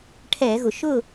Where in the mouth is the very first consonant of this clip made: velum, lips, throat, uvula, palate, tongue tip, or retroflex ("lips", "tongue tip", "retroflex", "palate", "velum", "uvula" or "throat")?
retroflex